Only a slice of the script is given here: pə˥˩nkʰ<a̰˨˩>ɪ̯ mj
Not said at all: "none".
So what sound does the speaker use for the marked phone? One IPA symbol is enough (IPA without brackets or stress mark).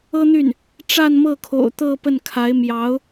a˧˥